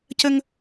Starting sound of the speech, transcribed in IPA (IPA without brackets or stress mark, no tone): c